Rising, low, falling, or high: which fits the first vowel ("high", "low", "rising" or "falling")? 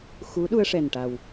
rising